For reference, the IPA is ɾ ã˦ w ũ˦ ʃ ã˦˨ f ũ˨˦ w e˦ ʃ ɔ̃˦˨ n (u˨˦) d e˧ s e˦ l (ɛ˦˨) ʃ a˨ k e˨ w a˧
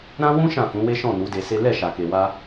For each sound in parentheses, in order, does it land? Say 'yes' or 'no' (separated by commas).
yes, yes